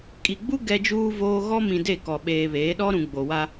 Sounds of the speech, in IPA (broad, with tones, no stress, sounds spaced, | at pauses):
kʼ i˨ ɡ͡b u˦ ɡ ɛ˦ d͡ʒ uː˦ v oː˦ ɣ ɔ˦ m ĩ˨ d e˦˨ k ɔ˨ ɓ eː˨ β eː˨˦ ɗ ɔ˦ ɾ ũ˨ ɡ͡b o˨ w a˦